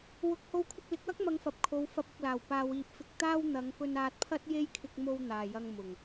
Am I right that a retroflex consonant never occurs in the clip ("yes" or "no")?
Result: yes